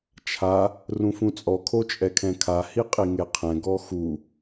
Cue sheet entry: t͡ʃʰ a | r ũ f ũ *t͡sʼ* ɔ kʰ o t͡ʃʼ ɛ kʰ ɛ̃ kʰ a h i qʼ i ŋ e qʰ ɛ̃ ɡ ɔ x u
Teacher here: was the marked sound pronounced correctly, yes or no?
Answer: yes